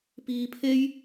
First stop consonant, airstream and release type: plain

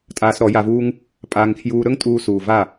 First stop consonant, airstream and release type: ejective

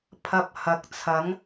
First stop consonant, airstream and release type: aspirated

